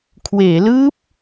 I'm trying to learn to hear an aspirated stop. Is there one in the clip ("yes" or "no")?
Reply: yes